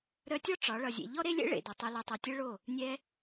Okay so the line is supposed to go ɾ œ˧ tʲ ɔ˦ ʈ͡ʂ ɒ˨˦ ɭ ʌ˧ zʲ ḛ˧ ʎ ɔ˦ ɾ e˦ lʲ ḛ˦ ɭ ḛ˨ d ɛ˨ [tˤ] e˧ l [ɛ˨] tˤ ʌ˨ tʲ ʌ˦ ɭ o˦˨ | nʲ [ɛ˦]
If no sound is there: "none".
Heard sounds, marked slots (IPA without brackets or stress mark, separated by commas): tˤ, e˨, ɛ˦